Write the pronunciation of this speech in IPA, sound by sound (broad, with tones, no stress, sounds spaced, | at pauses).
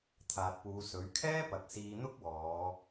t̪ʰ aː˨ t̚ p uː˨˧ s ɵ˨˥ ɥ kʰ ɛː˥ p ɐ˨ k̚ s iː˧ n̪ ʊ˥ k̚ w ɔː˨˧